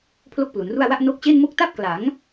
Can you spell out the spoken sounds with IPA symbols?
pʰ l o˥˩ k̚ p l u˩˦ n r u˥˩ a̯ w a˥˩ ʔ n o˦˥ k̚ t͡ɕ e˥˩ n m o˥˩ k̚ t a˥˩ p̚ k l a˩˦ ŋ

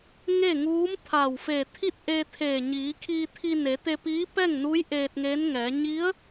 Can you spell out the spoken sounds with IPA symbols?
ŋ e˥˨ ŋ uː˧˥ m t̪ʰ a˧˩ w f e˧˩ t̪ʰ i˥˨ t̚ ʔ e˧ t̪ʰ eː˧˩ ɲ iː˩˧ kʰ iː˧ t̪ʰ i˧ n e˩˧ t̪ e˧ p iː˧˥ p ɛː˥˨ ŋ n uː˧˥ j ʔ eː˧ t̚ ŋ e˧˥ n ŋ ɛː˩˧ ɲ i˧˥ ə̯

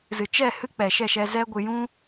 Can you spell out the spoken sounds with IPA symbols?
z ɨ˨ t͡ʃ ɛ˦˨ h ɨ˦ k͡p ɛ˨ ʃ ɛ˦˨ ʃ ɛ˧ z ɛ˦ ɡʷ ɨ˧ j ũ˦

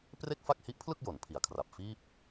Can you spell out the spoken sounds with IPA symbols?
p r e˥˩ k̚ f a˥˩ k̚ h i˦˥ ʔ pʰ l ɯ˥˩ k̚ j o˩˦ n pʰ i˨˩ a̯ kʰ r a˨˩ p̚ f iː˥˩ p̚

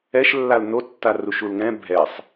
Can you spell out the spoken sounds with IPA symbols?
ɛ ʃ lː a l n o tː a r u ʃ u l ŋ ɛ̃ bʱ ɛ sˤ

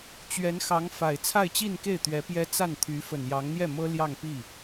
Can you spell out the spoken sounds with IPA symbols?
t͡ɕ ɥ ɛ˧˥ n x ɑ˧˥ ŋ f a˨˩ ɪ̯ t͡sʰ a˥˧ ɪ̯ t͡ɕ i˥˧ n k e˥˩ ɪ̯ t̪ ɥ ɛ˧˥ p j ɛ˥ t͡s a˥˩ n t̪ʰ y˧˥ f ə˨˩ n j ɑ˧˥ ŋ n̪ j ɛ˥˩ m ɤ˥ l j ɑ˥˧ ŋ p i˥˩

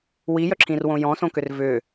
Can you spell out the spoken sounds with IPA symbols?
w i j œ ǁʰ ĩ r w õ j ɔ̃ s õ k ʏ r v ʏ

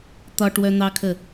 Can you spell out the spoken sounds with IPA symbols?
t̪ ɒ ʈ w œ n̪ ɑ kʰ ə

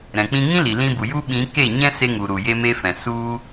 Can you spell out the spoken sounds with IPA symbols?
ɾ ɛ̃˨ k͡p ĩ˧ ŋ ĩ˦ l i˨ l ĩ˧ b u˨ j u˦ ɓ ĩ˨˦ k e˦˨ ɲ ɛ̃˦ s e˧ ŋ u˨ ɾ u˨ j e˦ m e˦ f ɛ̃˨ s u˦

